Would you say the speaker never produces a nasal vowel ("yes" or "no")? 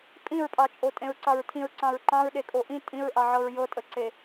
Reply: no